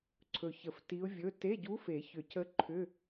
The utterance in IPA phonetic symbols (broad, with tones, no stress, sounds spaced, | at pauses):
ǀʰ ɵ˨˩ ç ə˨˩˦ f t i˧˥ ʊ̯ vʲ ɵ˧˥˧ t e˧˥˧ ɟ u˧˥ f e˨˩˦ ç ʏ˨˩˦ c ə˧˥ ǃʰ ʏ˧˥˧